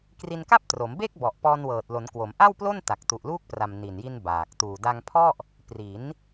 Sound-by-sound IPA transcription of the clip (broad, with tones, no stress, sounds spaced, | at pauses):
k r i˧ n k a˥˩ p̚ t r o˩˦ m b e˥˩ k̚ b ɔ˨˩ ʔ p ɔː˧ n w ɤː˨˩ t̚ l o˩˦ n k w o˩˦ m ʔ a˥˩ w p l o˥˩ n t a˨˩ k̚ t u˨˩ ʔ l uː˥˩ k̚ p r a˨˩ m n i˨˩ n j i˧ n b aː˨˩ k̚ t uː˨˩ d a˧ ŋ pʰ ɔ˥˩ ʔ | p r i˩˦ n